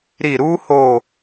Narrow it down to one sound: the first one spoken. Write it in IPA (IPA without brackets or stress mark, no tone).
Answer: ɾ